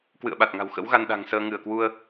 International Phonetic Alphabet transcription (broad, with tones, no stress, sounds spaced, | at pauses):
k w ɨ̰˧˨ ə̯ ɓ a˨˩ t̚ ŋ a̤˨˩ w x ə̰˧˥ w ɣ a˧ n ɗ a̤˨˩ ŋ s əː˧ ŋ ɨ˧˩ ə̯ k w u˧ ə̯